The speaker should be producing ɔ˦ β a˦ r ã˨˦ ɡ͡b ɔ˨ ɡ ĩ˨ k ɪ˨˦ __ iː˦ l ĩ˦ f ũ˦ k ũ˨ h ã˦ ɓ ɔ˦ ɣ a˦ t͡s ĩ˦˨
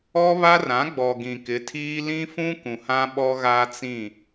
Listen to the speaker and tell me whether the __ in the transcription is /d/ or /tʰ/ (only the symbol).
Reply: tʰ